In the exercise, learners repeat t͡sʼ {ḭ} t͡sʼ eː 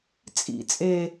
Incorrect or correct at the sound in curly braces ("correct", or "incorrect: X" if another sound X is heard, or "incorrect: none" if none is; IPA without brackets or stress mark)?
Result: correct